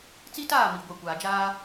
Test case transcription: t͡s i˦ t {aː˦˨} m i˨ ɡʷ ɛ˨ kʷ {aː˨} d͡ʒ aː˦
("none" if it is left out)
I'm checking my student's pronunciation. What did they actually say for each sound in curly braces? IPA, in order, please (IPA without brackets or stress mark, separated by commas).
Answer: aː˦˨, aː˨